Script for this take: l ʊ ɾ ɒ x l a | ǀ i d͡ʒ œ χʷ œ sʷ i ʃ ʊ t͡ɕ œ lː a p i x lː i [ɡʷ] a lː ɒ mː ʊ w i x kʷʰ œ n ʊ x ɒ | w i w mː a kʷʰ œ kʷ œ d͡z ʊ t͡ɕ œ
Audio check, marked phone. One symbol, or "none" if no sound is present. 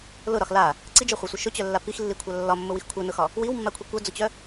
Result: kʷʰ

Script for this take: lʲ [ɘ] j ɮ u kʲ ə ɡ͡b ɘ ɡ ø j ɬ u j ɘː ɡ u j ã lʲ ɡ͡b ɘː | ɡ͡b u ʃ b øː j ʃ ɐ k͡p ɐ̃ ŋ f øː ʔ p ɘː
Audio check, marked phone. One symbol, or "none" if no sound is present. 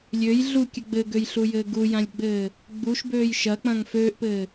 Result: ø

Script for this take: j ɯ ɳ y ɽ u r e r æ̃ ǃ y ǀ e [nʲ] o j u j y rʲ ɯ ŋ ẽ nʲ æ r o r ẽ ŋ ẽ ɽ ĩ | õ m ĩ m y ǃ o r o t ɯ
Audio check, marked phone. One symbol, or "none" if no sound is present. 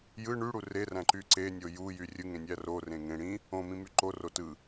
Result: nʲ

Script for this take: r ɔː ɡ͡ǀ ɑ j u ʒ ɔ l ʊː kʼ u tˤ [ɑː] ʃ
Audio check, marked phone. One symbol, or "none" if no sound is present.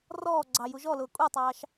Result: ɑː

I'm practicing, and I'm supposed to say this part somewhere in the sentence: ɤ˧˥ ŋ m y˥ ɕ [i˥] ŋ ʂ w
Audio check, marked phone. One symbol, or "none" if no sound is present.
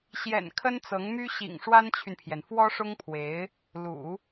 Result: ḭ˨˩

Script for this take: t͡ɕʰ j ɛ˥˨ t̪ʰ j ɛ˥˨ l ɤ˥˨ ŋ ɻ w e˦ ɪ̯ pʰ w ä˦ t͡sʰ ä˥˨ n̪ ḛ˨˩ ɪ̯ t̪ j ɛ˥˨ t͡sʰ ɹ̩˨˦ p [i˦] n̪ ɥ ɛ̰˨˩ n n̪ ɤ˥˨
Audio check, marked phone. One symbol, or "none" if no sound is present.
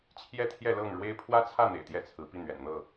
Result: i˥˨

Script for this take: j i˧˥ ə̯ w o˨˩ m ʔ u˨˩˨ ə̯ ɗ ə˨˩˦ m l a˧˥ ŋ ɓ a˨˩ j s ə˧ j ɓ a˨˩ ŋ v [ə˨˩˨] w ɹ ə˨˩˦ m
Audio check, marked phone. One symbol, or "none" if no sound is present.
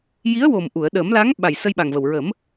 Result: ə˨˩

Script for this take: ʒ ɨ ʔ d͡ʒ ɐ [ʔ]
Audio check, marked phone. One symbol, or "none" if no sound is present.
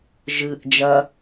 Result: none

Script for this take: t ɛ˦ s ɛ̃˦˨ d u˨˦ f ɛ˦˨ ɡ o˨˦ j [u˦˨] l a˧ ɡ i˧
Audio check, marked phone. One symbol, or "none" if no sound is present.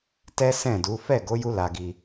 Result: u˦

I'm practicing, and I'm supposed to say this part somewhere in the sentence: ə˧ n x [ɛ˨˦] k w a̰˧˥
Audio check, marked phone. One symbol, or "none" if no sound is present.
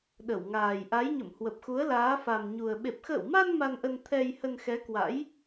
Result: ɛ˨˦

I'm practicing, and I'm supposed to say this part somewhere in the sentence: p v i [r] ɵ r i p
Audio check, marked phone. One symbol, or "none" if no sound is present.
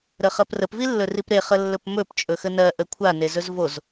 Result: lː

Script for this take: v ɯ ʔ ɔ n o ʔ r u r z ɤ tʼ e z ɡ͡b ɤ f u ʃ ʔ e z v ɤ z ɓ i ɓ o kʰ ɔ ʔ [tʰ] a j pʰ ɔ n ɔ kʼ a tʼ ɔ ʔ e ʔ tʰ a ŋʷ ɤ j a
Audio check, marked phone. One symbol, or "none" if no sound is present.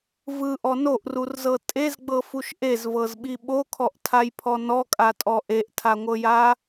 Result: tʰ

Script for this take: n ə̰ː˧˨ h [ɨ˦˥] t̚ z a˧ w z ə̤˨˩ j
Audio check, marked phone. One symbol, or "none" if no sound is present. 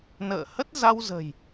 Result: ə˦˥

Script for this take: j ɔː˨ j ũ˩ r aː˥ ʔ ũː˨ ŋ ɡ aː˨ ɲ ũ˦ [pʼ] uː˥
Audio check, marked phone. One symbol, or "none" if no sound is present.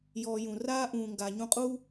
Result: qʼ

